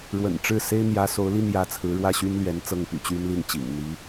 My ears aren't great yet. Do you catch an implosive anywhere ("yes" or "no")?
no